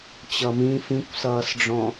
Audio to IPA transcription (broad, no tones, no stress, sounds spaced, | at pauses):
t͡ɕ ʌ m ĩ f ĩ kʷ s ʌː s ɖ͡ʐ ɔ̃